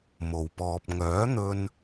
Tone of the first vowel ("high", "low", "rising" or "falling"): low